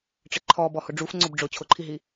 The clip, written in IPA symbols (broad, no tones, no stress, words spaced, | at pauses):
ʈ͡ʂɪǃʰɔ bɔhʊɖ͡ʐuf ŋ͡ǀʊbɖ͡ʐʊ t͡ɕʰʊǃʰiɦi